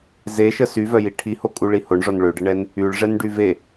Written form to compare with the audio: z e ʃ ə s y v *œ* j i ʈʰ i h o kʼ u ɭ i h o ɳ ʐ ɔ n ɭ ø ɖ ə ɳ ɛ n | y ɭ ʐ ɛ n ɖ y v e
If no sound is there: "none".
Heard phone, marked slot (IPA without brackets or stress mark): œ